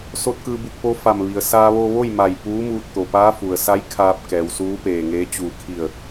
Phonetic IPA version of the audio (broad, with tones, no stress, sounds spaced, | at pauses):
s o˧ t̚ k ɯː˧ b u˧ k̚ p o˧˥ f a˧˩ m ʋ i˩ ə̯ s aː˧ ʋ o˧ ʋ o˥˨ j m a˧˩ j p uː˧˥ m uː˧ t̚ t̪ o˩ p aː˧˥ f u˩ ə̯ s a˧˥ j kʰ aː˧ p̚ k ɛː˩ w s uː˧˥ p eː˧˩ ŋ eː˧˥ t͡ɕ uː˧˩ kʰ i˧˩ ə̯